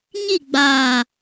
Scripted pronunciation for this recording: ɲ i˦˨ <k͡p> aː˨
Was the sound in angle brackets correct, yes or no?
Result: no